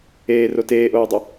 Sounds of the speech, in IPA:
eː r o t eː ʔ oː dˤ ə

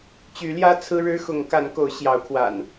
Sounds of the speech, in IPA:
t͡ɕ y˨˦ l j ä˦ t͡sʰ ɹ̩˦ ɻ ɻ̩˦ x ʊ˨˦ ŋ k a˨˦ n k o˨˦ ʊ̯ ɕ j ɑ˨˦ ʊ̯ kʰ w a̰˨˩ n

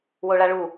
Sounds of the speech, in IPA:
w o ɭ a ɭ u

